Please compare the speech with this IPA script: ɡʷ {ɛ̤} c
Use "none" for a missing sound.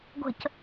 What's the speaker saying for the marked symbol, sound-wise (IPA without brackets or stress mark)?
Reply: ə̤